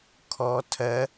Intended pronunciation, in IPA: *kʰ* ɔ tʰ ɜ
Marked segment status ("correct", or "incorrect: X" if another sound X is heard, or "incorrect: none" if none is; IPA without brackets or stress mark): correct